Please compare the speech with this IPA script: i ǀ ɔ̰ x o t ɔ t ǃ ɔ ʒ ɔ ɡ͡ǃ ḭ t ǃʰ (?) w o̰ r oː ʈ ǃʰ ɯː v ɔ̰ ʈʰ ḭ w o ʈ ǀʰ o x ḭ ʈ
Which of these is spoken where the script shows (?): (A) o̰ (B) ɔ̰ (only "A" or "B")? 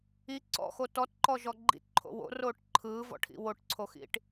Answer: A